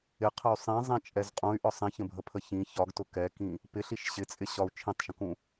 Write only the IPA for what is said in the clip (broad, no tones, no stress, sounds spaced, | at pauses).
ɪ qʰ ə y̯ sˤ ĩ zˤ ĩ t͡ʃʼ ɛ z qʼ ũ y̯ ʔ ɒ sˤ ĩ ç ə̃ bʱ ə pʰ ə ç ĩ ç ɒ ɡ t ʊ k ɛ k ĩ | p ɪ ɬ i ʃ ɕ ɪ t͡sʼ ɪ ɕ ɒ u̯ t͡ʃʰ ĩ tˤ ʃ ə̃ k ũ